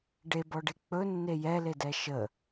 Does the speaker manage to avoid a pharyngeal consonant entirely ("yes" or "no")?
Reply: yes